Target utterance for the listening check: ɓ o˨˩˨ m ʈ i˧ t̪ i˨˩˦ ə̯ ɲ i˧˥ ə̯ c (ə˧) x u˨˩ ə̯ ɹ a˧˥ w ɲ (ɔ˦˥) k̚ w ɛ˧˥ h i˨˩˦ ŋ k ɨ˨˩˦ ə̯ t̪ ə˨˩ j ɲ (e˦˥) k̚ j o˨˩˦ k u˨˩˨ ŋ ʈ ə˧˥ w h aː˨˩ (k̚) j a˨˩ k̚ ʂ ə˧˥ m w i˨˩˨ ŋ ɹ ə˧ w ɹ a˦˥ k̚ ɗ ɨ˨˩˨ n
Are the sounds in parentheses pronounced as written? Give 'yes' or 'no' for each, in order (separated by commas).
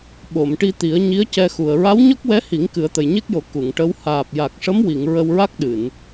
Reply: no, yes, yes, no